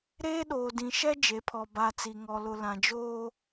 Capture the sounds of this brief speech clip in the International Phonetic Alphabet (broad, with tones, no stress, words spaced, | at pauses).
ɾeː˦ɗoː˨dĩ˨ʃɛ˦ d͡ʒe˨˦pʰɔ˨ ba˨ t͡si˨ŋɔ˨lʊ˨ lã˨d͡ʒoː˦